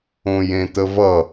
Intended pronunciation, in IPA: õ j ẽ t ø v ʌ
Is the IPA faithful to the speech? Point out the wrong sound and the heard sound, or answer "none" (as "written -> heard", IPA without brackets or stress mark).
ø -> ə